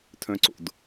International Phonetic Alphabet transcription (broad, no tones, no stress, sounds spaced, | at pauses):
tʰ œ̃ ǀ o̰ d